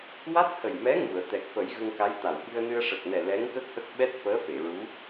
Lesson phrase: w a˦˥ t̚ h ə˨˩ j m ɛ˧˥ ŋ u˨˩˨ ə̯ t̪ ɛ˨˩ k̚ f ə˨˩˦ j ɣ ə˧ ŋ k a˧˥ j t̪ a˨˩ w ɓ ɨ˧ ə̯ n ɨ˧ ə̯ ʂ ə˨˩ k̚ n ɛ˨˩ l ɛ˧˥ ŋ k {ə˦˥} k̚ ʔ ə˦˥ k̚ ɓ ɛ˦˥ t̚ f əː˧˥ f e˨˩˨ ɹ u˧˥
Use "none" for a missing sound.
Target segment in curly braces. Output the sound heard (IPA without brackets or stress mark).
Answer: ə˦˥